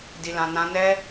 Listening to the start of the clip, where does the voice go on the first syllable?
low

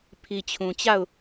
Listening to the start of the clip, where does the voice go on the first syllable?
low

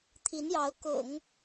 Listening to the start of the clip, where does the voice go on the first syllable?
rising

